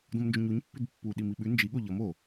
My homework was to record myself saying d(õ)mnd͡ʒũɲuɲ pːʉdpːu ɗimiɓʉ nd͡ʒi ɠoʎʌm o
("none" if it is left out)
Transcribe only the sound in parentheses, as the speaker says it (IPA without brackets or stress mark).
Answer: õ